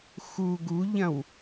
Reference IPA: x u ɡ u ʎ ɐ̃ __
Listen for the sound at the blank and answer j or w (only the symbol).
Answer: w